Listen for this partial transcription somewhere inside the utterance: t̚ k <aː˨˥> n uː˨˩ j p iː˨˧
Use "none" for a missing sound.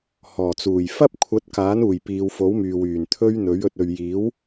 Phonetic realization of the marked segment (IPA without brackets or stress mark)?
aː˨˥